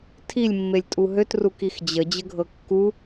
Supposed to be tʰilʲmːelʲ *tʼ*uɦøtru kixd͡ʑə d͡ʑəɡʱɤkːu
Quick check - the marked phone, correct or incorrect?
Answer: correct